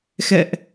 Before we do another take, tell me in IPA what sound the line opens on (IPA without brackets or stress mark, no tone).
x